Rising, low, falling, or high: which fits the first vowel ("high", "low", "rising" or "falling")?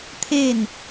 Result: falling